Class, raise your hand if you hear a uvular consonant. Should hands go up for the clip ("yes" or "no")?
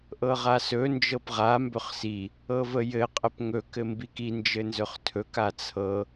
yes